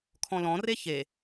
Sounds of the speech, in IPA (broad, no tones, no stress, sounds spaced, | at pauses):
kʰ ɔ̃ l ɔ̃ r e ç e